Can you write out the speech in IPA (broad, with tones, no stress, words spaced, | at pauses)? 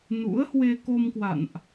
nṵ˧˥ə̯ hwe˧ko˧mkwa̰˧˨nʔ